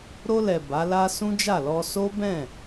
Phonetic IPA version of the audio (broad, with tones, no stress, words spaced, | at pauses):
ɾo˧lɛ˨ ba˨˦la˦ sũ˦d͡ʒa˦˨lɔ˧ so˦bɛ̃˦˨